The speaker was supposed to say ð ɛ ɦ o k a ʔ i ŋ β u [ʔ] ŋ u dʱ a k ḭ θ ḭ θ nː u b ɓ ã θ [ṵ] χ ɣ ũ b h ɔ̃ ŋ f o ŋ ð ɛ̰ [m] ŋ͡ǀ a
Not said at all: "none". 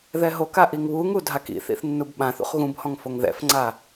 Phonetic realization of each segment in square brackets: none, ṵ, f

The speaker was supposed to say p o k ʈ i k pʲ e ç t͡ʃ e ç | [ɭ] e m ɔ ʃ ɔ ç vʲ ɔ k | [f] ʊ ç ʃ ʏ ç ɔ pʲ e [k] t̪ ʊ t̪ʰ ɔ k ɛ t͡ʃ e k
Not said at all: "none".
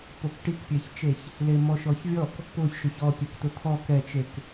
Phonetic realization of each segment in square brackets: l, p, k

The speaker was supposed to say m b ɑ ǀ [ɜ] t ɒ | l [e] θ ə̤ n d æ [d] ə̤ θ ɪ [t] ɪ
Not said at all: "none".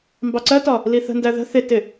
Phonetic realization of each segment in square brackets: ɜ, i, ð, t

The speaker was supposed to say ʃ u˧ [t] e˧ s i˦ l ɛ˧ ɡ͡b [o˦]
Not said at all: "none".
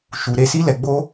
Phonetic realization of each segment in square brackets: ɾ, o˦

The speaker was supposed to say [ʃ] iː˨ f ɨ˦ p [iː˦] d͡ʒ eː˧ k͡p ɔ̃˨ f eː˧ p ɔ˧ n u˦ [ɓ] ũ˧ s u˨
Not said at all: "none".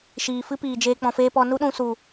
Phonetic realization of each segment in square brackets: ʃ, iː˨, ɗ

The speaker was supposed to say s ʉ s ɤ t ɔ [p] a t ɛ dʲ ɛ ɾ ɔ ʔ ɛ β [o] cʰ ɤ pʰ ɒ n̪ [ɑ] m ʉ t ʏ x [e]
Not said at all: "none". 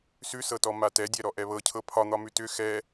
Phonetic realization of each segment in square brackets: m, ɤ, ɒ, ɛ

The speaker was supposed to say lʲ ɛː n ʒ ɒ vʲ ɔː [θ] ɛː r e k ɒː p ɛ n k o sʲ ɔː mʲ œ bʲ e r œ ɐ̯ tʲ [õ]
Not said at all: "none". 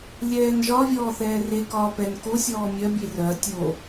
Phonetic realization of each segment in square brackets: θ, o

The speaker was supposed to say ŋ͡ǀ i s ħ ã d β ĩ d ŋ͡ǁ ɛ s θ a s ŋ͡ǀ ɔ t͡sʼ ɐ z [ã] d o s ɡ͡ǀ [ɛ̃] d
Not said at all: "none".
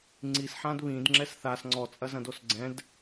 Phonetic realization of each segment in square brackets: ɐ̃, ɛ̃

